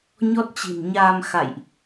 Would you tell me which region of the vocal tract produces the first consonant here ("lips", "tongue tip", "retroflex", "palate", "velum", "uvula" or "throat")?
palate